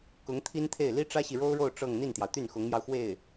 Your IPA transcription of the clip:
k ʊ˧˥ ŋ t̪ʰ i˥ n t̪ʰ e˥˩ ɪ̯ l i˥ ʈ͡ʂ ä˥ ɕ i˨ ɻ o˥ ʊ̯ ɻ o˥˧ ʊ̯ ʈ͡ʂ ɤ˥˧ ŋ n̪ i˥˩ n t̪ j ɑ˩ ʊ̯ t̪ y˥˩ n x ʊ˧˥ ŋ m j ɑ˧ ʊ̯ x w e˥˩ ɪ̯

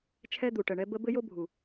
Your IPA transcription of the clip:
t͡ʃʰ ɛ˦ d̪ u˨ ʈ ə˨ ɳ ɛ˦ b ə˦ b ɘ˦ j o˦ bʱ u˨

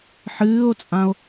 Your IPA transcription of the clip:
ħ ɨː o̯ t͡sʼ ã o̯

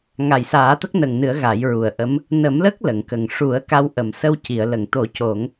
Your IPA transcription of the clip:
ŋ a˨˩ j s aː˨˩˦ t̪ ə˦˥ k̚ n ə˨˩ ŋ n ɨ˨˩˦ ə̯ ɣ a˨˩˦ j ɹ u˨˩ ə̯ ʔ ə˧˥ m | n ə˨˩˦ m l ə˦˥ k̚ l ə˨˩˨ ŋ k ə˨˩ ŋ ʂ u˨˩˦ ə̯ k a˧ w ʔ ə˨˩ m s ə˧ w c i˨˩˨ ə̯ l ə˨˩˨ ŋ t̪ o˨˩˦ c o˨˩˦ ŋ

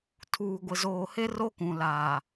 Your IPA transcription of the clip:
tʰ uː˨ ɡʷ ɪ˨ z oː˨ h e˦ r o˦ k ũ˨ l aː˨

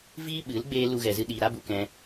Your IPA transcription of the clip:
v iː˦ ɓ ɨ˨˦ l ɡ͡b eː˧ l u˦ ɣ ɛ˧ z ɨ˦ ɗ iː˧ ɾ a˦ b u˧ k ɛ̃˧

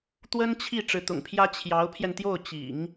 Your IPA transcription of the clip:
t̪ w ə˥ n t͡ɕʰ i˥˩ ʈ͡ʂ ɻ̩˧˥ t̪ ʊ̰˨˩ ŋ pʰ j ä˥ t͡ɕʰ j ɑ˧˥ ʊ̯ pʰ j ɛ˧ n t̪ j o˥˩ ʊ̯ t͡ɕ ḭ˨˩˦ ŋ

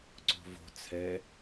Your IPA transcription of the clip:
ǀ o̤ v o̤ t͡sʰ ɛ

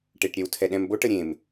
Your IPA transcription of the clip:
ʈ e ʈ ɾʲ ɛ w tʰ ɛ ɗ ɛ̃ m b o ʈ ə ɾʲ ẽ m

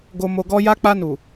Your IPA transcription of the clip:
ɡ o˨ m o˨ ɡ ɔ˧ j a˧ k͡p a˧ n u˨

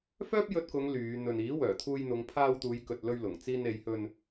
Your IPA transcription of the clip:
f œː˥ p̚ j ɵ˧ t̚ k ʊ˨˧ ŋ l yː˨˧ n̪ ɵ˨ n iː˨˥ w œː˨˩ t̪ʰ uː˧ j n̪ ʊ˨˧ ŋ pʰ aː˧ w t̪ uː˨˧ j k ɵ˨ t̚ l ɵ˧ ɥ l ʊ˨˩ ŋ t͡s iː˧ n e˨˧ j h ɵ˧ n

